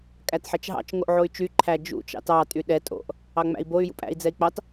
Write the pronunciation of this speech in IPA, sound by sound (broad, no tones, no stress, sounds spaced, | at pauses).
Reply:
kʼ æ t ħ ɛ t͡ʃ ɦ ɑ̰ t͡ʃ ŋ o ʔ ʕ o y̯ t͡ʃ y ǃʰ æ d͡ʒ ṵ t͡ʃ ɑ̰ t ɑ tʼ y ɗ ɛ tʼ o̰ ʔ | ɑ ŋ͡m æ̰ i̯ b o y̯ j ṵ pʼ æ̰ i̯ d͡z ɛ i̯ k͡p ɑ t